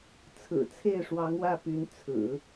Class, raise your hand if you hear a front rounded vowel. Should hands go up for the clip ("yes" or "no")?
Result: yes